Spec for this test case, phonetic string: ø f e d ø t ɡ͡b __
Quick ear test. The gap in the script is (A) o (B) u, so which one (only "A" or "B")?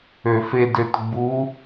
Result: B